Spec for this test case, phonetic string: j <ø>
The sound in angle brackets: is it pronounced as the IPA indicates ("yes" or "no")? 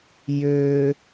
yes